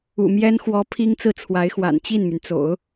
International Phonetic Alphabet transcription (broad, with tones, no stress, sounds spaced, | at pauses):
ṵ˨˩ m j ɛ˥ n x w ɔ˧˥ pʰ i˥ ŋ t͡s ɹ̩˥˩ t͡sʰ w a˧˥ ɪ̯ x w a̰˨˩ n t͡ɕ i˥˩ n m y˩ n t͡s o̰˨˩˦ ʊ̯